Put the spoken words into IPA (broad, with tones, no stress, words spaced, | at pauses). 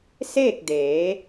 seː˥˨k̚deː˩˧